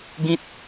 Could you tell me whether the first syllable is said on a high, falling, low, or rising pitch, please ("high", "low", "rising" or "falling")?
high